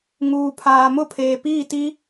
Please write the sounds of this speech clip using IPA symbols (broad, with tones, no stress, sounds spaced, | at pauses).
ŋ uː˨ pʰ aː˨ m ʊ˦˨ pʰ eː˨ p iː˦˨ t i˦